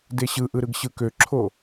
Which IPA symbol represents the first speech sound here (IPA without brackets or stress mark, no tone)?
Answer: d